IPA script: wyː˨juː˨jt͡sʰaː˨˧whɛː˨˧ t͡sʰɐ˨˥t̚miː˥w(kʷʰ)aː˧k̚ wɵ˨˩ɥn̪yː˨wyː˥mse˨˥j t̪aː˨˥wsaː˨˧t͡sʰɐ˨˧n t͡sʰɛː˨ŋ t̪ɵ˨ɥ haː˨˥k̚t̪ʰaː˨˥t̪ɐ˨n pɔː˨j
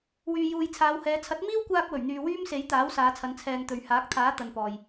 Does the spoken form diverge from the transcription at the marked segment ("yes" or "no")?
yes